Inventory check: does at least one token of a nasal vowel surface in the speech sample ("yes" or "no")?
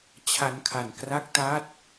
no